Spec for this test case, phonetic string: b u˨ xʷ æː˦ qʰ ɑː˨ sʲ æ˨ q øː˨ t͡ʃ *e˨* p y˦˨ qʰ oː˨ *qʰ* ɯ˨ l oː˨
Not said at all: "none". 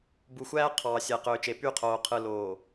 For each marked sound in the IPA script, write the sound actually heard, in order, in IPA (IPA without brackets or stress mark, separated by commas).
e˨, qʰ